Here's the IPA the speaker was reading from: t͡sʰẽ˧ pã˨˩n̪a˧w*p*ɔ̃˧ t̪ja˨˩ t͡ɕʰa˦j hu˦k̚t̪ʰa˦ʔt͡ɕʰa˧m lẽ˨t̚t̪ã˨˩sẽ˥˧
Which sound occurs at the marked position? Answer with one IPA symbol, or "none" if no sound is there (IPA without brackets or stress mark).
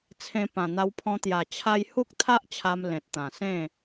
pʰ